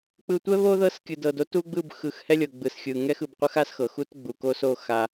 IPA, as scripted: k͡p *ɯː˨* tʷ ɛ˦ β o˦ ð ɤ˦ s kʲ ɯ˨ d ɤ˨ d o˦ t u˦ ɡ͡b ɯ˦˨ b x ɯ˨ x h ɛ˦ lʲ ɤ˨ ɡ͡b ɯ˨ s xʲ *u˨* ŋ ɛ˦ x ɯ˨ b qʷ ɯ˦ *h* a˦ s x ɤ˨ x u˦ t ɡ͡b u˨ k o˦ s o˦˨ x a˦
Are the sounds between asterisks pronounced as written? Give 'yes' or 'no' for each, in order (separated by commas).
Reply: no, no, no